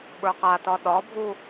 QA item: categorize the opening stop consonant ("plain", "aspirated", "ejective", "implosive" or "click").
implosive